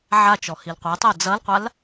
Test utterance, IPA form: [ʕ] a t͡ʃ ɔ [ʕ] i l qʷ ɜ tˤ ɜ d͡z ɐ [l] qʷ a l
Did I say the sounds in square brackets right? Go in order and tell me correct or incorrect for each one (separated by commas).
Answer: correct, incorrect, correct